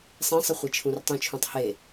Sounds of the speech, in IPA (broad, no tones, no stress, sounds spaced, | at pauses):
sˤ ẽ sˤ ɯ χʷ i t͡ʃʰ ũ r tˤ ũ t͡ʃʰ ũ tˤ h e